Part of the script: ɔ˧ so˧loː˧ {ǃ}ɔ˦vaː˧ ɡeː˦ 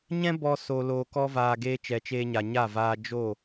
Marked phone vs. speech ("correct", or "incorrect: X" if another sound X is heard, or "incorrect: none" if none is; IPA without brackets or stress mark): incorrect: k